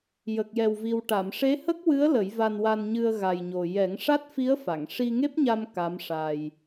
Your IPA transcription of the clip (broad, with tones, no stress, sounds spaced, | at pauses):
j ə˨˩ k̚ j ɛ˨˩ w v i˨˩ w ʈ a˨˩˨ m ʂ e˧˥ h ə˦˥ k̚ w ɨ˧˥ ə̯ l ə˨˩˦ j v a˧ n w a˧ n ɲ ɨ˧ ə̯ ɣ a˨˩ j ɲ o˨˩ j ɛ˨˩˦ ŋ ʂ a˦˥ t̚ f i˧˥ ə̯ f a˨˩˨ ŋ ʂ i˧ ŋ e˦˥ p̚ ɲ a˧ m k a˧˥ m ʂ a˧ j